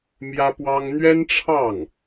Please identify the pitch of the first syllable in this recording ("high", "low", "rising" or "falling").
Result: high